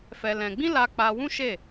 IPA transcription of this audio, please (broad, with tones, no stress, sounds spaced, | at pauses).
f ɛ˧ l ɛ̃˧ ɡ͡b ĩ˦ l a˧ k͡p a˧ w ũ˦ ʃ e˦˨